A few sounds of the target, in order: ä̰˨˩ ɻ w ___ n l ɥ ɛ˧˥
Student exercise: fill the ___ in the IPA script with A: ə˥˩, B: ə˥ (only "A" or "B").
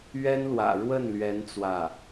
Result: A